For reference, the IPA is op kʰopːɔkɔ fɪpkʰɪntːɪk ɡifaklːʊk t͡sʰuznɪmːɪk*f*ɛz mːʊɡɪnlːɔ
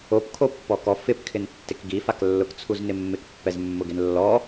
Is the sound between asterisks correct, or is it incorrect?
incorrect